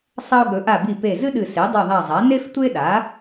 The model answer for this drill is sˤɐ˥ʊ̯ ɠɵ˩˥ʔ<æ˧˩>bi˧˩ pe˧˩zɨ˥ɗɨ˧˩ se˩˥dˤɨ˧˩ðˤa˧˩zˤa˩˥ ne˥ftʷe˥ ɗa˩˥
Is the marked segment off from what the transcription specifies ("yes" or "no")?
yes